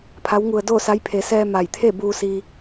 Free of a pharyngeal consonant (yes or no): yes